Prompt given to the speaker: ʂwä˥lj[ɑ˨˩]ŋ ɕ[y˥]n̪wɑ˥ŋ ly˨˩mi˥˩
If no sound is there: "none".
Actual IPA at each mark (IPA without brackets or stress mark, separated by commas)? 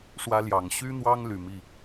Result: ɑ˨˩, y˥